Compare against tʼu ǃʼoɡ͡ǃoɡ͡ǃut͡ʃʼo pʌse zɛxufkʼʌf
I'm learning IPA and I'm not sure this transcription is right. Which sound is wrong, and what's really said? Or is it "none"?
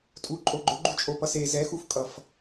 none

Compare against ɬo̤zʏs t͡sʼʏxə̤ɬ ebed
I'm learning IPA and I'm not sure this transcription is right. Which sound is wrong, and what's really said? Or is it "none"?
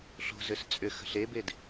none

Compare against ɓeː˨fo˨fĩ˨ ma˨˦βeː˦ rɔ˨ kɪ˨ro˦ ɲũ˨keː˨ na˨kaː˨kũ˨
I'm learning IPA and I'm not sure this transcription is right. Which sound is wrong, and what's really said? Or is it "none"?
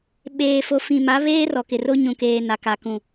aː˨ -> a˨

